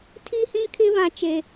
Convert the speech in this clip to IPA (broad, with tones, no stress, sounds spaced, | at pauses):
tʰ iː˦ h ĩ˦ kʰ ɪ˦ β ã˦ t͡ʃ e˦